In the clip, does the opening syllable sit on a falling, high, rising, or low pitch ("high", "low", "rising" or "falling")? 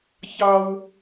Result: high